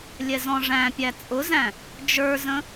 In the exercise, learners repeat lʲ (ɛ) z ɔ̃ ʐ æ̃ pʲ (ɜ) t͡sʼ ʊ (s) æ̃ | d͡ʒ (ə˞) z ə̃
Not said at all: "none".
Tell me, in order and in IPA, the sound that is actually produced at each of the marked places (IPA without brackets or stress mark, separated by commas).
ɛ, æ, z, ə˞